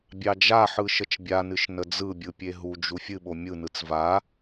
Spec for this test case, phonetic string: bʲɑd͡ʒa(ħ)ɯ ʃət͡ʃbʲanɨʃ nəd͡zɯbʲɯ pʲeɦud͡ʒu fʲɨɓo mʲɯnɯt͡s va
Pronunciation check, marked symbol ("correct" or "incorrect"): correct